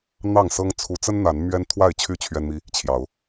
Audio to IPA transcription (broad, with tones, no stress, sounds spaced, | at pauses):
n̪ ɑ˥˨ ŋ s ɤ˦ ŋ t͡sʰ u˨˦ t͡s ə˦ n n̪ a˨˦ n m ɥ ɛ˦ n t̪ʰ w a˥˨ ɪ̯ t͡ɕʰ y˥˨ t͡ɕʰ ɥ ɛ˦ n m i˦ | t͡ɕʰ j ɑ˨˦ ʊ̯